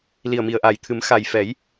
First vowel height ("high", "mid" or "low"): high